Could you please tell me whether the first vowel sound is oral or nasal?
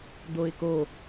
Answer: oral